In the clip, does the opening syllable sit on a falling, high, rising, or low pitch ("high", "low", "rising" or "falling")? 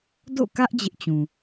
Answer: falling